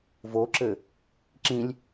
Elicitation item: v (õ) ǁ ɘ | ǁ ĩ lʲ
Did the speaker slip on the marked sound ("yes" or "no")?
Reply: yes